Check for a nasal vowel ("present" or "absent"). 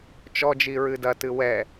absent